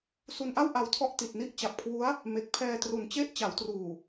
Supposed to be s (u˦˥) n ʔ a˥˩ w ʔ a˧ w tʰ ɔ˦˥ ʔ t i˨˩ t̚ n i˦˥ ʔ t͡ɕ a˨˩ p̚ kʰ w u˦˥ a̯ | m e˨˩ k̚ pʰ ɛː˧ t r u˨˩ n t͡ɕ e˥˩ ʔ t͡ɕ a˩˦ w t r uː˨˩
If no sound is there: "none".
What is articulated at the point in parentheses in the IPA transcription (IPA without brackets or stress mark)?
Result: u˧